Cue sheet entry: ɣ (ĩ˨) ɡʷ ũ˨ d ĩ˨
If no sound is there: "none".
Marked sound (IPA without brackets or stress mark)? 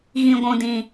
ĩ˨